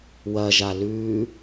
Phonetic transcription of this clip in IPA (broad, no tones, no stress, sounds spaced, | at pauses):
w ɐ ʒ a l ʉː